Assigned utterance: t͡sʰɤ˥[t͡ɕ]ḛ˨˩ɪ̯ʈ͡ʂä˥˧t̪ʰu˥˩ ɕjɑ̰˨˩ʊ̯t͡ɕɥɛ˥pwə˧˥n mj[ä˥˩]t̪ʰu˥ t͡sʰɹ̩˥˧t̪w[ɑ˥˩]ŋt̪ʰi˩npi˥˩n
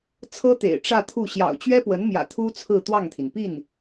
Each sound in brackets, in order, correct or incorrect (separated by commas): incorrect, incorrect, correct